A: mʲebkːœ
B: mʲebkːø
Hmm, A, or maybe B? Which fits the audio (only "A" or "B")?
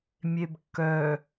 A